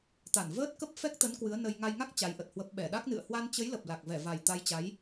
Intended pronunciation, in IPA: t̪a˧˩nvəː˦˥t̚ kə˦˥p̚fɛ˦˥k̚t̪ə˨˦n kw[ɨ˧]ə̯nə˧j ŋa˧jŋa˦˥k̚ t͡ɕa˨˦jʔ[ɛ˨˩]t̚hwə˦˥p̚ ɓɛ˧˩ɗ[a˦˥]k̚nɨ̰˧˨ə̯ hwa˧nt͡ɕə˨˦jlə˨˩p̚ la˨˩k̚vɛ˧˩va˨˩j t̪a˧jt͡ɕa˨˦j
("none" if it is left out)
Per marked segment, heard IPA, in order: ɨ˨˦, ə˨˩, a˦˥

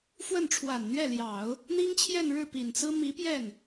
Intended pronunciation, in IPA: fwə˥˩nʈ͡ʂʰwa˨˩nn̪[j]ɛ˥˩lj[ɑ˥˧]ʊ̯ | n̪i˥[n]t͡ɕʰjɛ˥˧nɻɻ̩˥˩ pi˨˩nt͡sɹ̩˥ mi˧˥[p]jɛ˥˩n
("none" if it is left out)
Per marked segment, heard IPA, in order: ɥ, ɑ˨˩˦, ŋ, p

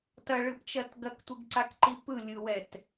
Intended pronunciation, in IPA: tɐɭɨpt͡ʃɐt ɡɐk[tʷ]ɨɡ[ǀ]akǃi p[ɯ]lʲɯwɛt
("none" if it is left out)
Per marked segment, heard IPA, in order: tʷ, ǀ, ɯ

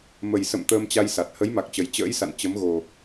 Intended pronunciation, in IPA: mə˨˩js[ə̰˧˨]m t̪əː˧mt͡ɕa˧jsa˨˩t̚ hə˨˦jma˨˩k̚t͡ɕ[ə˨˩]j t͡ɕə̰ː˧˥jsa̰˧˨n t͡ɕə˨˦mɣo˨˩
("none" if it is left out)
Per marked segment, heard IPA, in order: ə̰˧˨, ə˨˩

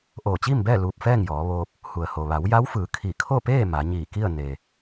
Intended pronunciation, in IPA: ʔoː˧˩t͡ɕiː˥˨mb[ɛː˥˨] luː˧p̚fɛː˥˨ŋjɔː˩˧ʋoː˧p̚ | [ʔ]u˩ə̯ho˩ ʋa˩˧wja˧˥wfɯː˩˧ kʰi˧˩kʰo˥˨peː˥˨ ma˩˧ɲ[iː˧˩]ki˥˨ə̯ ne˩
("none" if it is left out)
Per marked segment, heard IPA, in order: ɛː˥˨, h, iː˧˩

